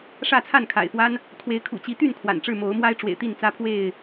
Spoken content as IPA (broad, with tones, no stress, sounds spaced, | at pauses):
ʂ ä˥˨ t͡sʰ a˥˨ n kʰ a̰˨˩ ɪ̯ f w a˦ n | kʰ w e˨˦ ɪ̯ kʰ ṵ˨˩ t͡ɕ i˨˦ t̪ y˥˨ n kʰ w a̰˨˩ n ʈ͡ʂ ɻ̩˥˨ m o˨˦ ʊ̯ m w a˦ ɪ̯ ʈ͡ʂ w ḛ˨˩ ɪ̯ t̪ i˥˨ n t͡s ä˦ pʰ w e˥˨ ɪ̯